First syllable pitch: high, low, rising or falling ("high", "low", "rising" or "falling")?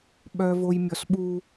low